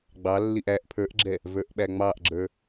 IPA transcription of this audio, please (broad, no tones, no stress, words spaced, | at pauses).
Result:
ɡ͡bɑlːiʔ æʔ pʰə˞ʔɡ͡ǁɛ | və˞ʔɓæŋ͡mɑʔɡ͡ǁə˞